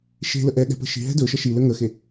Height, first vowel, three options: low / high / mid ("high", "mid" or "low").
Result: mid